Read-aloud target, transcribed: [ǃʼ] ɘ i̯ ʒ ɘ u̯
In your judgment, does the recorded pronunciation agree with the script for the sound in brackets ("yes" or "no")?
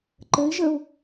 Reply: no